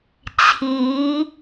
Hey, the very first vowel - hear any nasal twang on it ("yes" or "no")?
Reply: no